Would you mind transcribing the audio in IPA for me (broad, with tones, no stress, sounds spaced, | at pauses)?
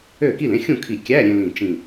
ø˥˨ k i˥˨ l ẽ˧˥˧ xʲ ũ˥˨ kʰ i˧˩ kʲ æ˧˥˧ ɾʲ ẽ˧ l ĩ˧˩ t͡ʃ ĩ˧˩